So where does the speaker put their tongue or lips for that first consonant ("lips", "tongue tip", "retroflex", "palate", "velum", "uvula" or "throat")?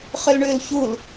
uvula